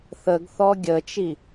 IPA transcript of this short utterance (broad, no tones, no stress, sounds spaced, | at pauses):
θ ə ɡ θ ɔ ɡʲ ə t͡ʃ i